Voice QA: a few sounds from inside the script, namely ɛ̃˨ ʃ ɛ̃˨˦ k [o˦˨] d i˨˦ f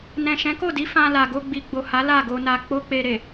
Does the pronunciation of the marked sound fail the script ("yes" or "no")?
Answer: no